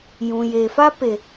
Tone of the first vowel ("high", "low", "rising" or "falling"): low